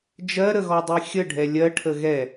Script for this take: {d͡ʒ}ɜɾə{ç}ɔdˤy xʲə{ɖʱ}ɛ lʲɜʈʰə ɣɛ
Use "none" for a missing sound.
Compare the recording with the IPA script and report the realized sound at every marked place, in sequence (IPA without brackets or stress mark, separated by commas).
d͡ʒ, ɣ, ɖʱ